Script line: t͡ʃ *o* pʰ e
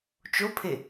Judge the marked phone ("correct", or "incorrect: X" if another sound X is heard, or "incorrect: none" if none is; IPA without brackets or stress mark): correct